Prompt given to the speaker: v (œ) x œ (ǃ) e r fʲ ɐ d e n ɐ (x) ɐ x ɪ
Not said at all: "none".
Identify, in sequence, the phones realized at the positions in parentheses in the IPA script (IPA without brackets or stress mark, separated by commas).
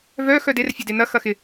œ, d, x